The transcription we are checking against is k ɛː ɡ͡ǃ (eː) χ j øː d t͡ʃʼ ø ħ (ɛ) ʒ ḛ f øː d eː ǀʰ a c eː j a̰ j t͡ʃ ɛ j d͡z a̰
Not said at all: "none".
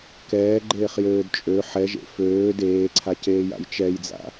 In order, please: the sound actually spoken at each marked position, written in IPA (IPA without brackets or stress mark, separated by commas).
eː, ɛ